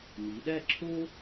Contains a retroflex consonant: no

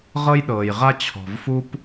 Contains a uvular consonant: yes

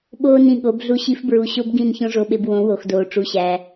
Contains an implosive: yes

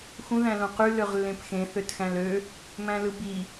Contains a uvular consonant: yes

